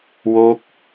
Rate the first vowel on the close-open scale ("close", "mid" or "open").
mid